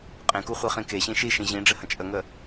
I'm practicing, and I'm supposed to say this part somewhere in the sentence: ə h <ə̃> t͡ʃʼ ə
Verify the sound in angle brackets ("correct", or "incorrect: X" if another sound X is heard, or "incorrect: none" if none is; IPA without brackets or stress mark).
correct